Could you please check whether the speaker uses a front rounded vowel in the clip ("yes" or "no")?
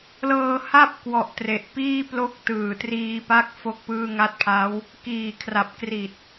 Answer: no